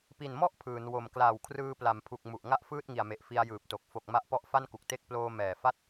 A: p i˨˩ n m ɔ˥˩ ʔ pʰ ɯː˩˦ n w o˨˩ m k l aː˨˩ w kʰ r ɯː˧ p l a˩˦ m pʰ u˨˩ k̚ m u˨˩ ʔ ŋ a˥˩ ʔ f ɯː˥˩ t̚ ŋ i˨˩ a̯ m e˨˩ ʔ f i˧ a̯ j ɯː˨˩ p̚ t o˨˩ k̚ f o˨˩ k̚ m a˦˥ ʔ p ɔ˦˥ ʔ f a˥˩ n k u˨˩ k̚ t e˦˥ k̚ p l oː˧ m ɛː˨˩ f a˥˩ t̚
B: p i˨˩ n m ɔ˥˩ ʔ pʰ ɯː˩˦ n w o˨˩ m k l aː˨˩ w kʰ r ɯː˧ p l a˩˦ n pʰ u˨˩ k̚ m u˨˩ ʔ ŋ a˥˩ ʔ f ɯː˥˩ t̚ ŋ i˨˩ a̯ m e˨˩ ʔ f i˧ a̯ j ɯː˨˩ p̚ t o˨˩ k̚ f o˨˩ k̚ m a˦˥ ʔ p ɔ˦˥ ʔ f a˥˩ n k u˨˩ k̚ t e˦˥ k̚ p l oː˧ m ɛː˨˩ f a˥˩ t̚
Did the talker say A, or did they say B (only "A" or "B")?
A